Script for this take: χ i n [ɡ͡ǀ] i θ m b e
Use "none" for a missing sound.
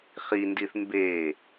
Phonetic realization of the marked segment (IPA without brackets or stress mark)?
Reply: d